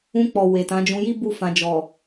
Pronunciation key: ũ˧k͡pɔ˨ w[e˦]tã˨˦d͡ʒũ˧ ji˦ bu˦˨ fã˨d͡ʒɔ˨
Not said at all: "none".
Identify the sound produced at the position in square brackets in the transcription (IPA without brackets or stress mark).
e˨